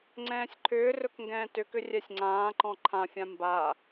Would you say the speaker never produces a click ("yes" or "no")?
no